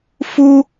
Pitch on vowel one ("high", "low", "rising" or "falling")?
high